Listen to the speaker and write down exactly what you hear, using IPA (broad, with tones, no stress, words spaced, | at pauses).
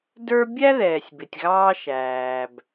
də˞˦ bʲæ˦ ðɛː˨sʲbɪ˨tʲɣɑː˦ ʃæː˨b